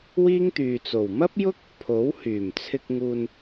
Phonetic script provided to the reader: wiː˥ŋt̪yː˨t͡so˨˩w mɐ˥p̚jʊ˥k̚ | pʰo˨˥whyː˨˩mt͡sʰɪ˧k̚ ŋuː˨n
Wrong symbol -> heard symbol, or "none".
none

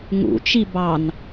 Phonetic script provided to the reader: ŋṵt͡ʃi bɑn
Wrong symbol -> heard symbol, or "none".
none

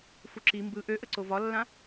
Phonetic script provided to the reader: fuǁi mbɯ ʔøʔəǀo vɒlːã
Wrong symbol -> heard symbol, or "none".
none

